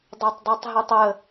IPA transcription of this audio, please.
dˤatˤdˤatˤɦitˤə

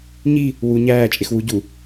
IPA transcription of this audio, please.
ɲi | wu ɲæː t͡ʃʼexwu ɟu

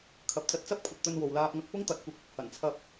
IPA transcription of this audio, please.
kʰɐ˨p̚ t͡sɐ˧t̚t͡sɐ˥p̚kʷʰɐ˨t̚ t̪ɵ˧nwo˨wlaː˧p̚ŋɐ˧k̚ pʊ˥ŋt̪ɐ˨˥t̚kʷɪ˧k̚ | hɐ˨˩nt͡sʰɐ˧p̚

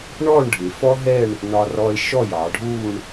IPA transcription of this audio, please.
ɳɔː˥˧ɳɖʱɪː˩˧ fɔ˥ɦɛ˥˧ɳ | nɒ˧rɔː˧e̯ ʃɔ˥˧jɑ˩˧ɖʱuː˥˧ɳ

